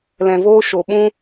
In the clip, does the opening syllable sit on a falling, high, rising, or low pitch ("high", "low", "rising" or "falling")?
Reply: low